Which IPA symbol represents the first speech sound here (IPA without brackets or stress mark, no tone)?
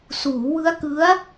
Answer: s